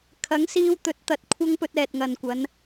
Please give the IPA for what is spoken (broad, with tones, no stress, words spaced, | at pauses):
kʰɐ˨˥ŋsiː˧w t̪ɵ˨˥t̚t̪ɐ˨˥t̚ kʷʰɐ˥ŋ pɵ˧t̚ ɛː˨t̚ŋɐ˨nkʷɐ˨˧n